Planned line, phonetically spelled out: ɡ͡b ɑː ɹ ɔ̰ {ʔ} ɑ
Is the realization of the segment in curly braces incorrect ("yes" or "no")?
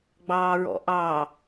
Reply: no